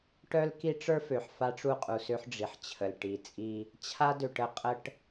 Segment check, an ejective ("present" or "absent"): present